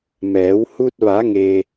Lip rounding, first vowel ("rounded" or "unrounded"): unrounded